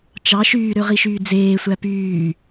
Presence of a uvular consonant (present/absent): present